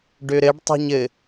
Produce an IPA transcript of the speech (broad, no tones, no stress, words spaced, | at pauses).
ɖøɾɘɖ tˤo̤ɲɘ